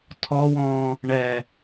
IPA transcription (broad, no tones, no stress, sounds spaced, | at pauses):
tʰ ɔ w ɔ̃ | ɳ ɛ